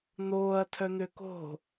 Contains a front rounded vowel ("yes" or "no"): yes